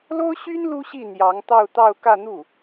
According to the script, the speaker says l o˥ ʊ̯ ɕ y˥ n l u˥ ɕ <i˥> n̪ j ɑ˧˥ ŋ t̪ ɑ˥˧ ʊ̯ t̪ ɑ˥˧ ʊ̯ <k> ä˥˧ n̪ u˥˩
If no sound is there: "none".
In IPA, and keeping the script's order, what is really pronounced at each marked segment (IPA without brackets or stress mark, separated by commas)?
i˥˩, k